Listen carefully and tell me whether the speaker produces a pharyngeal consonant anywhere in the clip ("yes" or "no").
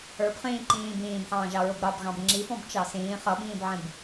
yes